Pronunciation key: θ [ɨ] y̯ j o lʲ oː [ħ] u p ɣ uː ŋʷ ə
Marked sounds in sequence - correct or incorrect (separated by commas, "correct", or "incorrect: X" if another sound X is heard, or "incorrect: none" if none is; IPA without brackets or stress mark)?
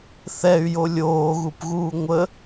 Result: incorrect: ɛ, incorrect: ɣ